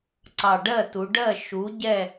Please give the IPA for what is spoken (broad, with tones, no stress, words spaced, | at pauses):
ǀɑ˨˩ɖɜ˥˩tu˩˧ ɖɜ˥˩ ʃu˩˥ ɟɛ˥˩